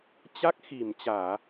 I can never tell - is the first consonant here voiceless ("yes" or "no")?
yes